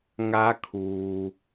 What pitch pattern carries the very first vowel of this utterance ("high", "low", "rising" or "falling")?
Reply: rising